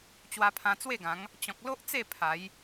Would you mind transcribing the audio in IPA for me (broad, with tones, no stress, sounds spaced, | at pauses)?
t͡ɕ w a˧ pʰ ã˧ t͡s w e˥˧ ɡ ã˨˦ ŋ | t͡ɕ ɔ̃˨ k̚ l o˦ ʔ t͡s e˥˧ pʰ a˨˦ j